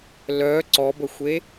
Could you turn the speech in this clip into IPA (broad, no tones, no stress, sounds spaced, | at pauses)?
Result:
l œ ǀ ɔ b ə xʷ e